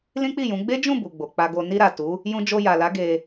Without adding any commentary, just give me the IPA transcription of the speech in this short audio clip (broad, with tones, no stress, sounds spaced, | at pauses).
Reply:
l ĩ˦ k͡p i˦˨ j ũ˨˦ ɡ͡b e˦ d͡ʒ ũ˦˨ b u˨ ɡ͡b o˨ k͡p a˧ ɡ o˧ n i˧ ɾ a˨ t u˨˦ | j ũ˧ d͡ʒ o˧ j a˨ l a˨˦ ɡ e˧